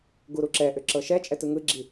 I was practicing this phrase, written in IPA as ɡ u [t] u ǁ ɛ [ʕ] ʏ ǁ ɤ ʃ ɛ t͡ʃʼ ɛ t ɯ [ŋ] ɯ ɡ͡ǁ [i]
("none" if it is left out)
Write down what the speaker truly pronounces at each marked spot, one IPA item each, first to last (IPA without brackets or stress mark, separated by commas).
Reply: ɾ, ʔ, ŋ, i